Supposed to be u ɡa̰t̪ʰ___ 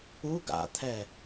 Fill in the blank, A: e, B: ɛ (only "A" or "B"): B